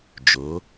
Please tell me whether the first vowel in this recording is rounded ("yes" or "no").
yes